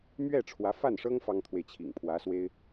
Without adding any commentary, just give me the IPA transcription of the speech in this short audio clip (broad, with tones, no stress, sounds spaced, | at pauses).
m ɥ ɛ˥˩ ʈ͡ʂʰ w ä˧˥ f a˥˩ n ʂ ɤ˥ ŋ f ɑ˥ ŋ t̪ʰ w e˨ ɪ̯ t͡ɕʰ ḭ˨˩ ŋ pʰ w ä˧˥ s w e˥ ɪ̯